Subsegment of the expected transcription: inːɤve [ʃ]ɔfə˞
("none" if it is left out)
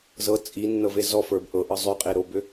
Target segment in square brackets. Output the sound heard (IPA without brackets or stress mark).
z